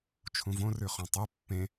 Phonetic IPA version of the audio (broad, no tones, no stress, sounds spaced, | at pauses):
t͡ʃʰ ũ v õ r ʉ χ õ tˤ u pː ẽ